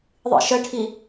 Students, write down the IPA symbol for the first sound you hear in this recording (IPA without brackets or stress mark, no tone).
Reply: ðˤ